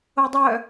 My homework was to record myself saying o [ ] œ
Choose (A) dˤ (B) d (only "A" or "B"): A